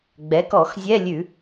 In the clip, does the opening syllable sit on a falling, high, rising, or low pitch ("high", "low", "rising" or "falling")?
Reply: rising